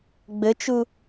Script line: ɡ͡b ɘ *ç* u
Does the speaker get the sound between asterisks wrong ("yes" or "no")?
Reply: yes